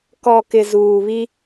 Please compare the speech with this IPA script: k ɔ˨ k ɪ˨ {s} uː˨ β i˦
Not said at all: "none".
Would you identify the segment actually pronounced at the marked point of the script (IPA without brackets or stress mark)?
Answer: z